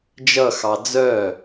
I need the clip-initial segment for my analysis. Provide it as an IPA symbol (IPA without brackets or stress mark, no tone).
d͡ʒ